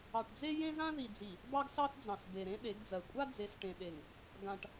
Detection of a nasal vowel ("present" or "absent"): present